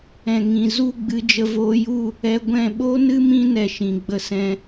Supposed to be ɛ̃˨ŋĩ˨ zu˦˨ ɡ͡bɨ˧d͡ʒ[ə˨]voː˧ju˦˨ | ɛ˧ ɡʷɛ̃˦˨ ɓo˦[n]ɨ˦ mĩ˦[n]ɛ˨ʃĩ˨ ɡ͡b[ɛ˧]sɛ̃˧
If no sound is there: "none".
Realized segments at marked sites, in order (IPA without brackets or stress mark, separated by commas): ə˧, n, n, ə˧